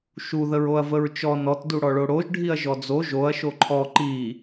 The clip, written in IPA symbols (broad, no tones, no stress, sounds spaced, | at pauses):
ʃ u ð ə ɹ o ɐ̯ v ə ɹ t͡ʃ ɔ n ɔ t d u ɽ ɔ ɭ o ɽ o ʒ ɖʱ i ɐ̯ ʒ ɔ d͡z o ʒ o ɐ̯ ʃ o ǃʰ ɔ ǃ i